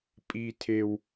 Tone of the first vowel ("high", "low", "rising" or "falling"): high